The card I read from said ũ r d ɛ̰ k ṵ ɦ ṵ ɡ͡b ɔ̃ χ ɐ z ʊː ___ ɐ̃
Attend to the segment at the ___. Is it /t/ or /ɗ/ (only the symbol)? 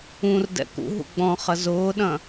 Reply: ɗ